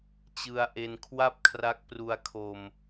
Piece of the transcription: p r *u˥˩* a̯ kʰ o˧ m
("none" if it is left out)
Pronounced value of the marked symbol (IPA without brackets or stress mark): u˧